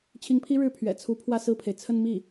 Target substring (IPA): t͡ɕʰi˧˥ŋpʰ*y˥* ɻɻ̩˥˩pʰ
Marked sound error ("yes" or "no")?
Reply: yes